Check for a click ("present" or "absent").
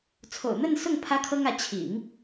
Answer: absent